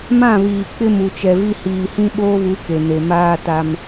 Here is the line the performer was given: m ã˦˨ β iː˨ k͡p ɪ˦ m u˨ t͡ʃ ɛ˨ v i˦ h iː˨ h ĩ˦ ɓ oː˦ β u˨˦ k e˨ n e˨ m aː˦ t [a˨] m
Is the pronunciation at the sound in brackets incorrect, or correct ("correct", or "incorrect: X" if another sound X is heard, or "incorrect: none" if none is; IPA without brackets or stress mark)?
correct